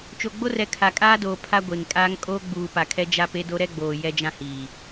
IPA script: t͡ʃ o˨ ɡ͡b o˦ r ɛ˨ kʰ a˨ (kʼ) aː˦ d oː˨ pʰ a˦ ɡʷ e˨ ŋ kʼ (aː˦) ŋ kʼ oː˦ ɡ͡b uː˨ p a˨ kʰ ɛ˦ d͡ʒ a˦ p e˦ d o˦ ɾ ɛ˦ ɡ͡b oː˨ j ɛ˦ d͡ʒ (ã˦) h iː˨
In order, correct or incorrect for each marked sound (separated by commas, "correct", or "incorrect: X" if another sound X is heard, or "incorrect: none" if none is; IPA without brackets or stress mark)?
correct, correct, correct